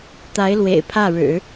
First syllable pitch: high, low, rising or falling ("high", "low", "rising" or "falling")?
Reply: rising